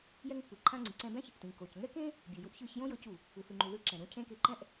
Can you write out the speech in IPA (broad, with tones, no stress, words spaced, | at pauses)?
jɛ˧ŋpːɯ˩ǃʰã˧ ŋ͡ǀi˩ǀɛ̃˧bɛ̃˥ç | tĩ˩ko˩cŋɛ˥ kẽ˥ | bʲu˩ju˧ʔ çɯ˧çjõ˥jɤ˧cu˩ | ɯ˩θɯ˩ŋ͡ǃu˩ ðɯ˧ǁɛ̃˩ɾũ˧ cʰẽ˥ke˧ ǃɛ̃˥ʔ